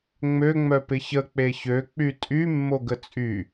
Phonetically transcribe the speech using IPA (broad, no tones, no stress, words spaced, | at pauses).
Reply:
ŋ͡mø ŋ͡mœpɪçə k͡peçø k͡pytʼy mːoɡət͡sʼy